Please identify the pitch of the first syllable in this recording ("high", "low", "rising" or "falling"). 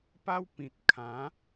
high